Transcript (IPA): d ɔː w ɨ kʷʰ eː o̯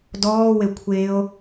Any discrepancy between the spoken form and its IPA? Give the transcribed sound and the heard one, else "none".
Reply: ɨ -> e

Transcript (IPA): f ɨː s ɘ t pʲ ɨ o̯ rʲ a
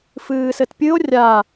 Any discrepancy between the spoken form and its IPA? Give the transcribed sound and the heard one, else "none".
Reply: none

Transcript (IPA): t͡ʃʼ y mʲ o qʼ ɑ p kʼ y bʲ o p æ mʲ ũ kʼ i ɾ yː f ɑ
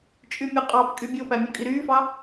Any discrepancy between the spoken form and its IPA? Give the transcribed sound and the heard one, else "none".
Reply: none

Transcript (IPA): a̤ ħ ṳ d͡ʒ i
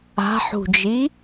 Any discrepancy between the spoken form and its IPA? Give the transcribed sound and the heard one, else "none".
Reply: none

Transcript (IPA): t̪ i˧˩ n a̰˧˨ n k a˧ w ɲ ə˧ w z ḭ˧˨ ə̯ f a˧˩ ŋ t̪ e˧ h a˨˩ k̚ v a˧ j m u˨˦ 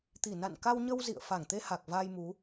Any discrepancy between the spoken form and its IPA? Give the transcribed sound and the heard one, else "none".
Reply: none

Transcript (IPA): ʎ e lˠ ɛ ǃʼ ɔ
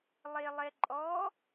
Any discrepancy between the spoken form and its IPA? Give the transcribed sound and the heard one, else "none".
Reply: ʎ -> lˠ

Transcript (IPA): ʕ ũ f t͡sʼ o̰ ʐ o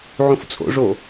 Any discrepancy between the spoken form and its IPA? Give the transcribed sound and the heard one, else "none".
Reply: none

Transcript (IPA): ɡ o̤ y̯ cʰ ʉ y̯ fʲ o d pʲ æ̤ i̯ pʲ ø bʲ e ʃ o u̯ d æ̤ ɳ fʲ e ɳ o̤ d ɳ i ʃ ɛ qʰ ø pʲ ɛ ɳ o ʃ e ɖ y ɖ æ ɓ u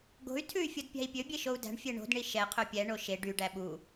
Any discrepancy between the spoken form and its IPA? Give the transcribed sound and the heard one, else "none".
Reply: cʰ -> tʰ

